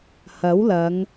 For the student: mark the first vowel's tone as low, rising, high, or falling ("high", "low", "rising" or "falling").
rising